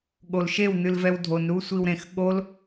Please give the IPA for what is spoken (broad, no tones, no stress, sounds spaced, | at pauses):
ɠ o l ʃ e w n ɨ l v ɛ w dʱ o n ɾ u sʷ i w ɾ ẽ x ɠ o l